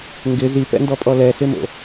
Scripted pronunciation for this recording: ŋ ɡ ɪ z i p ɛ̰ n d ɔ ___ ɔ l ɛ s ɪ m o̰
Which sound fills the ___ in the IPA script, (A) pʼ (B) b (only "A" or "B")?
A